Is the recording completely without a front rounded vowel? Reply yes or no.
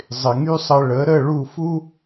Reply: no